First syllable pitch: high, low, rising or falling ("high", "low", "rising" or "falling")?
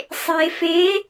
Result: low